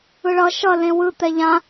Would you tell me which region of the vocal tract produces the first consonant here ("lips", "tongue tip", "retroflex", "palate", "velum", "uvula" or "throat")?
retroflex